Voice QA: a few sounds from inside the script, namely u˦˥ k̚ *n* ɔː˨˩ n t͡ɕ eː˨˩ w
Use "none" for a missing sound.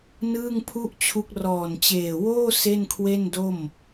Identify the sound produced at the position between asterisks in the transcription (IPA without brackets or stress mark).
r